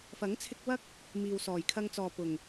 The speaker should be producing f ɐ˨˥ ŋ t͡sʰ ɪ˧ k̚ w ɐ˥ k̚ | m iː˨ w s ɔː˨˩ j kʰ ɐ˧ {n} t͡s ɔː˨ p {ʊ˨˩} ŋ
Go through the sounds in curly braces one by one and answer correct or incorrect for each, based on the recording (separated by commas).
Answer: incorrect, correct